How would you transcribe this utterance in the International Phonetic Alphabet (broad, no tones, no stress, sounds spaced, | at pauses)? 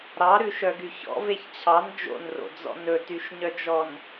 ɾ ɑ ɾ ʉ ʃ œ ɡ y ç ɔ̰ v e ç t͡ɕʰ ɑ n d͡ʒ o̰ n r o̰ d͡z ɔ̰ n ɵ t y ʃ ɲ œ d͡ʒ ɔ n